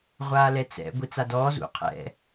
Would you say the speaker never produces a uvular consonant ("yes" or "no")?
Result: no